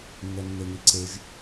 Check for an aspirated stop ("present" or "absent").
absent